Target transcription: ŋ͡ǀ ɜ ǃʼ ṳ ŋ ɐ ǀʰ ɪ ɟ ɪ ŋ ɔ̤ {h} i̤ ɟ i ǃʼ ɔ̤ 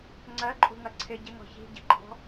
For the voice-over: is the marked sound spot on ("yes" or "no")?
no